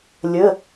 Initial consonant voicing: voiced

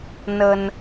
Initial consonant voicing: voiced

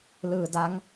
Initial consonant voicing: voiced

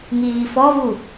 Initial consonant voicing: voiced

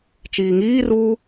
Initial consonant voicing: voiceless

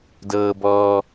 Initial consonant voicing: voiced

